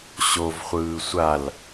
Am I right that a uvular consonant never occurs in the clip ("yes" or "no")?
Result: no